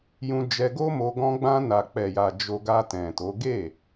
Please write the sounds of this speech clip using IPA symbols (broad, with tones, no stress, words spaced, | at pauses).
jũ˧d͡ʒɛ˧ɡo˦mo˧ ɡɔ̃˧ ɡ͡bã˧na˨k͡pɛ˨ja˨ d͡ʒo˧ɡa˧tɛ̃˨to˨˦ ɡe˦˨